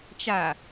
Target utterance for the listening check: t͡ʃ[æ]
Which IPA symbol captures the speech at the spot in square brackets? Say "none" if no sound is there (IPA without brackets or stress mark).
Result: a